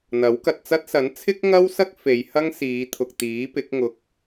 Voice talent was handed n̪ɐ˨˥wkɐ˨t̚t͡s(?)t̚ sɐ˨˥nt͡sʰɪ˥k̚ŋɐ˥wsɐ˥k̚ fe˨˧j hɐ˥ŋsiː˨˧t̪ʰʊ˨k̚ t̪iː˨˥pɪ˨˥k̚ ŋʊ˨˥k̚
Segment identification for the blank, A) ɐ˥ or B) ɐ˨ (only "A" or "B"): A